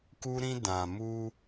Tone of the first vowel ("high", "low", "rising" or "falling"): high